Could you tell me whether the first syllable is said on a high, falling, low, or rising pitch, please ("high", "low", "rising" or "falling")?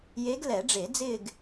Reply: rising